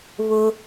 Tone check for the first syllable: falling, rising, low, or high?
high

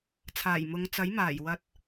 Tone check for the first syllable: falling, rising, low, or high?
low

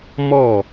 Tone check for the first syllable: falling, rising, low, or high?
falling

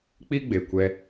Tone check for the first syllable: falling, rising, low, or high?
high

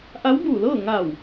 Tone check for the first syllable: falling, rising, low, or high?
rising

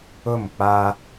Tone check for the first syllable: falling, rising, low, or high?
falling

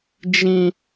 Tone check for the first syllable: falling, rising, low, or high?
high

